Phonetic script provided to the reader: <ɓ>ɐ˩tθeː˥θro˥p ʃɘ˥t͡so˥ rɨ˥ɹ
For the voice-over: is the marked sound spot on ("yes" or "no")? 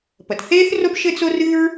no